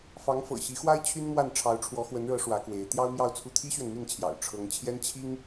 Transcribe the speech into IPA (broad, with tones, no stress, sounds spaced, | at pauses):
f ɑ˧˥ ŋ f ɤ̰˨˩ ɕ i˧˥ x w a˥ ɪ̯ t͡ɕʰ y˥ n m w a˥˩ n ʈ͡ʂʰ ɑ˧˥ ʊ̯ ʈ͡ʂʰ w ɔ˧˥ x w ə˧˥ n ɻ ɤ˧˥ ʂ w ä˧˥ k w e˧˥ ɪ̯ t̪ j ɑ˥ ʊ̯ m j ɑ˥˧ ʊ̯ t͡sʰ u˥˩ t̪ʰ i˥ ɕ ɥ ɛ˨ n m i˥˩ n t͡ɕʰ j ɑ̰˨˩ ʊ̯ ʈ͡ʂʰ ɤ˧˥ ŋ t͡ɕʰ j ɛ˥ n t͡ɕʰ i˥ ŋ